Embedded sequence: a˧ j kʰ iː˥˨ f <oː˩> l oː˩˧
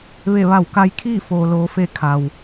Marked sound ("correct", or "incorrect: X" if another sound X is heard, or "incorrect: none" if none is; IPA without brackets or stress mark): correct